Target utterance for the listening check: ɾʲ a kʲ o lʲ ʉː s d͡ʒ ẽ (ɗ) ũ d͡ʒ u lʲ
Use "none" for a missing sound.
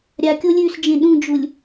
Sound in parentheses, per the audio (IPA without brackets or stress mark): ɗ